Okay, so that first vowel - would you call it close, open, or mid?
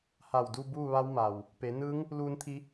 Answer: open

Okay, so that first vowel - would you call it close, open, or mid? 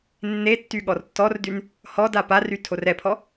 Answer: mid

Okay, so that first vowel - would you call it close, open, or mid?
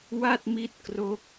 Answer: open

